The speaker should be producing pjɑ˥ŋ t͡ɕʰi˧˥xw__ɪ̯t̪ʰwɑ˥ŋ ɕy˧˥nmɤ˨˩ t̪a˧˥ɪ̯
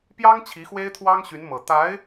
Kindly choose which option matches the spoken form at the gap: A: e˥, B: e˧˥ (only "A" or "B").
A